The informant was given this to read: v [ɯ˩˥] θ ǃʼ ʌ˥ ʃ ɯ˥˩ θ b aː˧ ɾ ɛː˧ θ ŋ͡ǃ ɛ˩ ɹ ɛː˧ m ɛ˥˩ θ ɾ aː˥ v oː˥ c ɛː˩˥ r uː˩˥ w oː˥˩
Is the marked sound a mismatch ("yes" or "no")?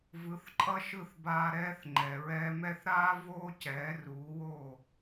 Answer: no